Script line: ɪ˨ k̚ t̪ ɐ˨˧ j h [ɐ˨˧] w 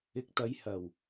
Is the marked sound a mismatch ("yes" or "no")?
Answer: yes